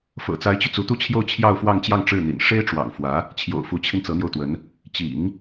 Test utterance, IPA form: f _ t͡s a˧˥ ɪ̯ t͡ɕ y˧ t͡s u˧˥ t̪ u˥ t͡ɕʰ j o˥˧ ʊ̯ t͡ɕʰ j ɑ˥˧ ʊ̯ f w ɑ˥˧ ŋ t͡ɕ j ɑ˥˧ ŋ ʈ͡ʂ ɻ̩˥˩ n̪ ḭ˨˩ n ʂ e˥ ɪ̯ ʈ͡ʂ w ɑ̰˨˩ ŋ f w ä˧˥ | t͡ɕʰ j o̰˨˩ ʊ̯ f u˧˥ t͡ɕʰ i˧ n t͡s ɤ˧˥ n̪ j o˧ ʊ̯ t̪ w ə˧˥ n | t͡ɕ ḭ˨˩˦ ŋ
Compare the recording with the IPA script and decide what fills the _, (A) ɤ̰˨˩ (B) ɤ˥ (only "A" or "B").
A